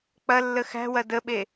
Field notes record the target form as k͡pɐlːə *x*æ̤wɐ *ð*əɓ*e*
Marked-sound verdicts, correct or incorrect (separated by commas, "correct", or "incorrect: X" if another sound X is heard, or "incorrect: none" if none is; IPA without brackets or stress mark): correct, incorrect: d, correct